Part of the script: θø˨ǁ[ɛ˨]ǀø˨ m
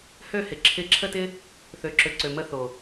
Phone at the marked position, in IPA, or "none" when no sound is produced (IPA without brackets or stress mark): ø˨